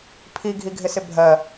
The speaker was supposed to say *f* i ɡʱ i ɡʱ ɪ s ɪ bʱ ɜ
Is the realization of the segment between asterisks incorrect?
yes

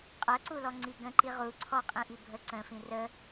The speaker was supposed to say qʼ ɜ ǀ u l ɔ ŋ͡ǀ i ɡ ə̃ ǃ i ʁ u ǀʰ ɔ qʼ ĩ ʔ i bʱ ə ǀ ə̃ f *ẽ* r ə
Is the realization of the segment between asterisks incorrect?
yes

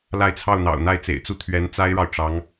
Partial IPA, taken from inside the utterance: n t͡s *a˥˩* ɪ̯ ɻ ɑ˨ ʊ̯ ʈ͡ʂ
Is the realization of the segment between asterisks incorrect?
yes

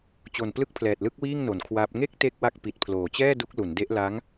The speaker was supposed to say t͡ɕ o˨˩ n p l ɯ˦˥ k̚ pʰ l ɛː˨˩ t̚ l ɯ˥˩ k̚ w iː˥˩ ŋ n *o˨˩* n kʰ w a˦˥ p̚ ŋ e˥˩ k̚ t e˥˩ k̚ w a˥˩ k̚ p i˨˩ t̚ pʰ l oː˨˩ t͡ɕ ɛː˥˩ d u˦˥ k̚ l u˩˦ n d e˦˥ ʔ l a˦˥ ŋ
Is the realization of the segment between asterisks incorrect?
no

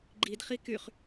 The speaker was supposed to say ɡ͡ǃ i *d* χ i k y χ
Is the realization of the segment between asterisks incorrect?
no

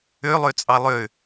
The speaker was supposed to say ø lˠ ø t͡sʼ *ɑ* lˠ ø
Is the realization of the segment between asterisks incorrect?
no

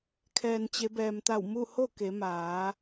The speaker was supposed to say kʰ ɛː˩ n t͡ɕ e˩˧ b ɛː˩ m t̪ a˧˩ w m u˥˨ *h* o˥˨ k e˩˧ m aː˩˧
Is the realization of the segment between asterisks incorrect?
no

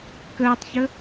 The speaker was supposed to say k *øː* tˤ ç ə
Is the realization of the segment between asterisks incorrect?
yes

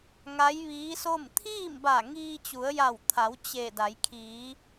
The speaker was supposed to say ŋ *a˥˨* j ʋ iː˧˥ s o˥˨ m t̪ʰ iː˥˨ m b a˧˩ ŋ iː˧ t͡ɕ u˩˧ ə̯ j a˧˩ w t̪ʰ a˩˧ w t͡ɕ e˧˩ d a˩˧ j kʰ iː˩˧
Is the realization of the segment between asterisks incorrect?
yes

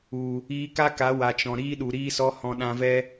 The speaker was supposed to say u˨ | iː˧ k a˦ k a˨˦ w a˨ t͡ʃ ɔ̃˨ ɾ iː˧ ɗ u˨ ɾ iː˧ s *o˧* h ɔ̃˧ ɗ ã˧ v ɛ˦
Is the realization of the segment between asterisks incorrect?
yes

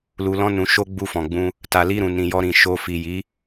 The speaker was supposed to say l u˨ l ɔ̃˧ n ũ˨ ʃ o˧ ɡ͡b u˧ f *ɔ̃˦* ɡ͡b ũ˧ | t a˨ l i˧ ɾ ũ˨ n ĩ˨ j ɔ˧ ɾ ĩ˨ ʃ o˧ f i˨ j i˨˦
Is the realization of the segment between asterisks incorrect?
yes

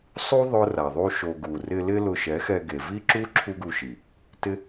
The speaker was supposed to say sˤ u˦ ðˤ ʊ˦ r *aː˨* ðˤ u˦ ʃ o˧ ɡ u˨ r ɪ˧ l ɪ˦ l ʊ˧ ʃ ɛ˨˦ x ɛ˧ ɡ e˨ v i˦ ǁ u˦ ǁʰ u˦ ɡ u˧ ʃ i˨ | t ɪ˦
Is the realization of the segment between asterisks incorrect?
yes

